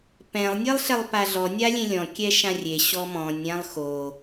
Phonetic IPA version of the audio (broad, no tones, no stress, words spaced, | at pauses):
pɛ̃lˠ nʲelˠɬɛlˠpaɮɔ nʲalʲẽlʲɔ̃ kʲɛʃãrʲe ɕɔmɔ̃nʲ ɾʲãlˠxo